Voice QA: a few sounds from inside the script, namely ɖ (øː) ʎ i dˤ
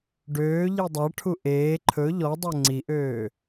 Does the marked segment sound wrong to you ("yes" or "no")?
no